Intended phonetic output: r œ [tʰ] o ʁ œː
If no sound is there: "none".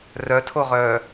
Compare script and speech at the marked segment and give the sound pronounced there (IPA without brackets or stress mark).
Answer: tʰ